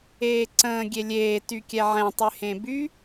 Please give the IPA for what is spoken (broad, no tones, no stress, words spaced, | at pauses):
eːǀə̃ː ɡʲelʲeː tykʲɛʕɛ̃ tˤyhẽby